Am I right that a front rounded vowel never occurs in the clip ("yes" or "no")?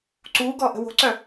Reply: no